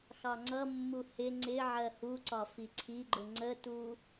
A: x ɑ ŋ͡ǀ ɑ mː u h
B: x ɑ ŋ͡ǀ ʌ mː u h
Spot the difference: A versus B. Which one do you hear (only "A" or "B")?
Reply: B